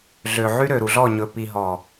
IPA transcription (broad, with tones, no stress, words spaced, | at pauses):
ɮø˨ʕy˦ ɾø˨ɾu˨ɮɔ˦˨ ɲɵ˨pi˨ɦɔ˨